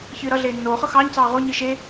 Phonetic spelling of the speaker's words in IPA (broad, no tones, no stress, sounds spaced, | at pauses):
ç ɨː ɾ ʌ ɮ eː nː oː χ ɤ x ɑː ɲ t͡s ɑː ʁ o ɲ ɨ ʃ e